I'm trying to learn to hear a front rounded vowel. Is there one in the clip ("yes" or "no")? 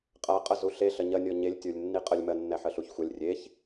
no